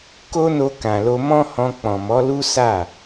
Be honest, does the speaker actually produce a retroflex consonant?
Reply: no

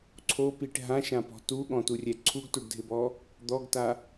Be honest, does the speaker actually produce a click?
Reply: yes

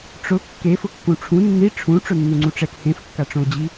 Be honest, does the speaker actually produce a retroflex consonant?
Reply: yes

